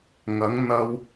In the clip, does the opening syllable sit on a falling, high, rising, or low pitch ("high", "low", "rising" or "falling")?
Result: rising